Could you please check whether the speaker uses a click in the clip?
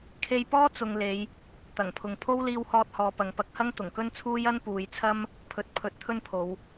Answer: no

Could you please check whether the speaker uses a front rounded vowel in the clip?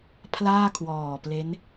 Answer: no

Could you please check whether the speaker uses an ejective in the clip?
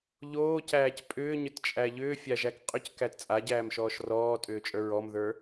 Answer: yes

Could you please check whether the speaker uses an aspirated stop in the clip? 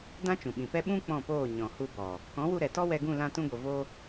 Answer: no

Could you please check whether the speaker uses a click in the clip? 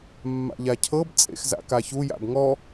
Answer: no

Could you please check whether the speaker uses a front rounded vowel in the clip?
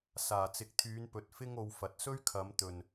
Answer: yes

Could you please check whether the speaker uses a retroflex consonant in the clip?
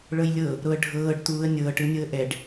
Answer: yes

